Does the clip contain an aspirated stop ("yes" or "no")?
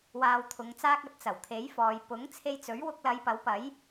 yes